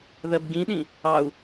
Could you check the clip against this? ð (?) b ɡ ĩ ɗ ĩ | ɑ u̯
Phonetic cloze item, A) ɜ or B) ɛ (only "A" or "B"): A